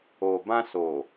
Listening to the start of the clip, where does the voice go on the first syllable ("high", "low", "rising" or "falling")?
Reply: low